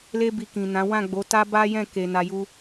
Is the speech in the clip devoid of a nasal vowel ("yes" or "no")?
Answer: no